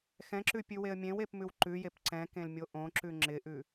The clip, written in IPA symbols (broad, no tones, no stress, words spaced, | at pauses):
xɛ̃ǁʉpʲʉweə̯ mʲẽwepmʉw ǃʉjep ǀɛ̃kẽlmʲo ʔõǁʉ ŋ͡ǁɪʔʉ